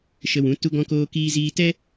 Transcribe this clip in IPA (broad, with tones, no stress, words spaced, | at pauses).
ʃə˧wũ˨˦ tu˧ɡɔ̃˧koː˧kiː˧ ziː˧tɛ˦